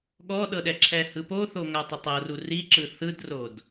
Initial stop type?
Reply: implosive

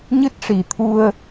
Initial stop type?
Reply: plain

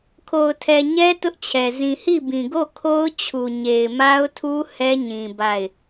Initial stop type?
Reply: aspirated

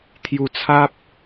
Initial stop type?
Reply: aspirated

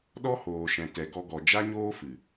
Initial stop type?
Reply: implosive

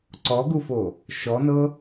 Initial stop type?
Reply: click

